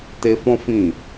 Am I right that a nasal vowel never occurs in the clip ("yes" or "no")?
no